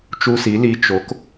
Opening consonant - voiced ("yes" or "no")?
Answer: no